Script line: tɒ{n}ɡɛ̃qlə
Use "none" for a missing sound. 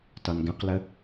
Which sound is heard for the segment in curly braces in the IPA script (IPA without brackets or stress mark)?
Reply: n